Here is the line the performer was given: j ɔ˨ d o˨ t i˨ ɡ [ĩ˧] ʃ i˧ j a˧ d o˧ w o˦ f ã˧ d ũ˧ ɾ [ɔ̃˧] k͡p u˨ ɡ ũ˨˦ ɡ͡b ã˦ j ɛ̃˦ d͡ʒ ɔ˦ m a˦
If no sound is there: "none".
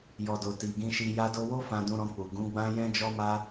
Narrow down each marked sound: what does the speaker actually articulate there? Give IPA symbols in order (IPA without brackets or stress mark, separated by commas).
ĩ˧, ɔ̃˧